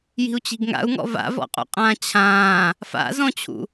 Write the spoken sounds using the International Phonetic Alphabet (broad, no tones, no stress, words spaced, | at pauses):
ji̤u̯t͡ɕi̤ɡŋa̰u̯ŋɔ̰ va̰vɔ̰qʼṵqʼãː t͡ɕʰãː | fa̰zɔ̃t͡ɕʰṵ